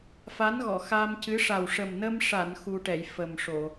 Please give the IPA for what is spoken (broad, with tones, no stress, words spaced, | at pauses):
fa˧˥nɣɔ˨˩˨ xa˧mcɨ˧˥ ʂa˨˩wʂə˨˩mnə˧mʂa˨˩˨n xu˧ʈɛ˨˩˨j fə˨˩mʂo˨˩˨